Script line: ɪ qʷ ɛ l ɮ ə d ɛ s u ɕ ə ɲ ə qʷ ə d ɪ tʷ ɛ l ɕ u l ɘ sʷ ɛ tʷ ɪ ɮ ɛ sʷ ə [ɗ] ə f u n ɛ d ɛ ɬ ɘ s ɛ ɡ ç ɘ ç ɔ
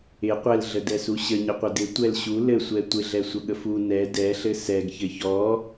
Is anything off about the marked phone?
yes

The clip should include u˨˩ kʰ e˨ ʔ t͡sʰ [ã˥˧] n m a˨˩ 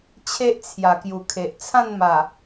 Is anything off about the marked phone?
no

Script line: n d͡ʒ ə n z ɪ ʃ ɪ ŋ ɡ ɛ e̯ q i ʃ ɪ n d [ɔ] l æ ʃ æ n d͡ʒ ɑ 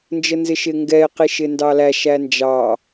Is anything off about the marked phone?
yes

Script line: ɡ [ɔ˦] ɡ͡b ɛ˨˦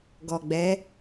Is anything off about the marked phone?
yes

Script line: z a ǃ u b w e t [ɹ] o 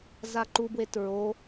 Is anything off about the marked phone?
no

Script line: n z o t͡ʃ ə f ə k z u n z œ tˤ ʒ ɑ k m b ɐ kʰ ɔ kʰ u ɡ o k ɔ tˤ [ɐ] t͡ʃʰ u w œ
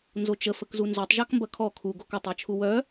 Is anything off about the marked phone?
yes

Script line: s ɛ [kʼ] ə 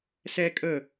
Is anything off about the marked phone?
no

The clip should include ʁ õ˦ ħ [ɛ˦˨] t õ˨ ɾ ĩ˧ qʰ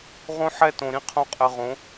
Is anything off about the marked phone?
no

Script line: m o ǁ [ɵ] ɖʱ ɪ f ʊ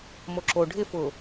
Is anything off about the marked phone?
yes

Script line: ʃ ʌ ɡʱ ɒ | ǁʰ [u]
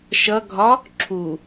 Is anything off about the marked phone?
no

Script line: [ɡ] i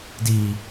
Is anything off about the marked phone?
yes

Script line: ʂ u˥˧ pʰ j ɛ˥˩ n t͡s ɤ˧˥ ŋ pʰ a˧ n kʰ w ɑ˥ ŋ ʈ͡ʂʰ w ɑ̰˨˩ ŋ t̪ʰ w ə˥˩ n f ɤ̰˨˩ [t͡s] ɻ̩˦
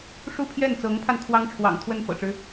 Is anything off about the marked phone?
yes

